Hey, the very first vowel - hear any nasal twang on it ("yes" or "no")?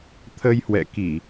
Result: no